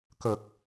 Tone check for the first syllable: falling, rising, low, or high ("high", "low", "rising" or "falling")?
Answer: low